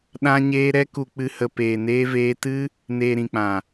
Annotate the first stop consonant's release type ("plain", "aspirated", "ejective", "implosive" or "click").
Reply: implosive